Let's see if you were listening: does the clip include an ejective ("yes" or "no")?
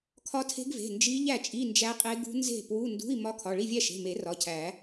yes